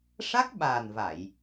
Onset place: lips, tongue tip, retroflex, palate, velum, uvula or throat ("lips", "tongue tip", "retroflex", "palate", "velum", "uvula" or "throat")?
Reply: retroflex